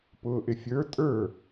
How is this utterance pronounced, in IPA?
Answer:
p ʊː ʔ ɪ fʲ ə˞ tʼ ə˞

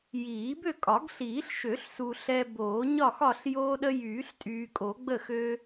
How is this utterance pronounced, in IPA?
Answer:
j iː˨˩˦ b ø˥˨ kʼ ɒ˨˩˦ ɡ ɬ iː˨˩˦ ɬ ʃ ø˨˩˦ ɬ s u˨ ɬ ɛ˦ b oː˨˩˦ ɲ ɒ˥˨ x ɒ˥˨ ɬ j oː˦ ɗ ə˦ j yː˨˩˦ ɬ tʼ yː˨ kʼ o˨˩˦ ɡ͡b ə˥˨ x ø˦

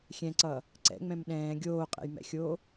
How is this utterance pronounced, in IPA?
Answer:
xʲ ɛ̃ ǀ ʌː | ǀ ɛ̰ ŋ͡m ɛ̃ m ɗ ɛ̃ː ɡʲ oː qʼ ɛ̰ j m ɛ̰ xʲ oː

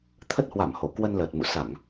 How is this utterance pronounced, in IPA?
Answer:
t̪ʰ ə˦˥ t̚ h w a˧˩ m h o˧˩ k w ə˧ n l əː˨˩ t̚ m ṵ˧˨ s a˧˩˨ ŋ

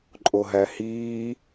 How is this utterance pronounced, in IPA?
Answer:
ǃʼ o ɦ æ h iː

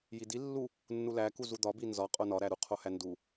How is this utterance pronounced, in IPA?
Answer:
j i d i lː u | nː u l æ k u z u d̪ ɒ b i n z ɒ qʼ o n ɒ ɾ æ ɾ u qʰ o h æ n d u

